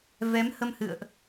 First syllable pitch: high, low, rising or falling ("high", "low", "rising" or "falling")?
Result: rising